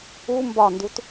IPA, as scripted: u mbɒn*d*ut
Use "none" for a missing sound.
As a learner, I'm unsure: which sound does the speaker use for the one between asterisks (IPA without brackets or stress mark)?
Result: d